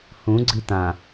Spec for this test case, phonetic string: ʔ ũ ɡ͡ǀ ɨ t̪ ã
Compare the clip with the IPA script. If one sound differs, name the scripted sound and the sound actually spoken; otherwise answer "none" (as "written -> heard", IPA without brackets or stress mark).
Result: ʔ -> h